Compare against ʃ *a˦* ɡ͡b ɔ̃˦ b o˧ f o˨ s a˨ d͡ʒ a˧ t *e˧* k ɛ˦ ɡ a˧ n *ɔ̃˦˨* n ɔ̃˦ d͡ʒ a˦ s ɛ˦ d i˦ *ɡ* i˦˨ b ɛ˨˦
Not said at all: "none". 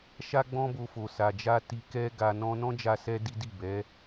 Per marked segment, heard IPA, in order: a˦, i˧, ɔ̃˦, d

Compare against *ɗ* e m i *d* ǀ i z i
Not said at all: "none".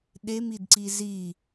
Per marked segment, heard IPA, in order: ɗ, d

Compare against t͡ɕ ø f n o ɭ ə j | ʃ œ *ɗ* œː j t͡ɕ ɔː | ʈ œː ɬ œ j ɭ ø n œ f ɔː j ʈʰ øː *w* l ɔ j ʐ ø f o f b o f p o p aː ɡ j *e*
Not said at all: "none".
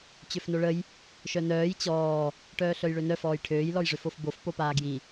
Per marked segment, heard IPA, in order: n, j, i

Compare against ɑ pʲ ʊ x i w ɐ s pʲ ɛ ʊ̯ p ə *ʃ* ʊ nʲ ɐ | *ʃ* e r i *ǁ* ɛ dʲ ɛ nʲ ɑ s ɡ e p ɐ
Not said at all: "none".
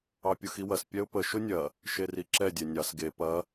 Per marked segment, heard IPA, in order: ʃ, ʃ, ǁ

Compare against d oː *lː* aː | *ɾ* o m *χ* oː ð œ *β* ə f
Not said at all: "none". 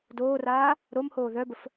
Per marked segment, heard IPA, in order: r, ɾ, h, b

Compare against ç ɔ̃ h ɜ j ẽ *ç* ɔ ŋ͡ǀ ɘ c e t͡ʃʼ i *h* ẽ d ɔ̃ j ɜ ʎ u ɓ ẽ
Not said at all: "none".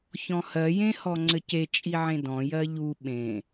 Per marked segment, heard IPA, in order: h, ʕ

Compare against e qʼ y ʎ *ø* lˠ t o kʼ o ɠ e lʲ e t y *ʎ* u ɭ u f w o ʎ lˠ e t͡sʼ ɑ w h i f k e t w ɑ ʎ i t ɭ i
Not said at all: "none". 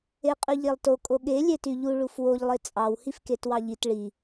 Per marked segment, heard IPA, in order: e, ʎ

